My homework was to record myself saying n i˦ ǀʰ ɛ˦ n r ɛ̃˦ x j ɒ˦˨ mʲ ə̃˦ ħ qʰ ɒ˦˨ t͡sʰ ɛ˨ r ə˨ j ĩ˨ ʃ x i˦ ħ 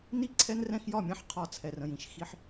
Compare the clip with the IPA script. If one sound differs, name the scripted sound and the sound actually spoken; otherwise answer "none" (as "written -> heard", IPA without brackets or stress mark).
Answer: ə˨ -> ə̃˨